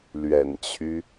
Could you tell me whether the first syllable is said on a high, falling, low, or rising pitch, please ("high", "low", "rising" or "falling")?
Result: low